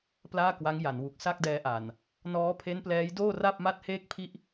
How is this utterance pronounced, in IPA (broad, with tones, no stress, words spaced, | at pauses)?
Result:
plaː˥˩kwa˦˥ŋja˩˦nwu˨˩k̚ sa˥˩k̚dɛː˧ʔa˨˩n | nɔː˦˥pʰe˦˥nplɛː˦˥jdoː˥˩ ra˥˩p̚ma˥˩t̚heː˥˩k̚pʰi˥˩ʔ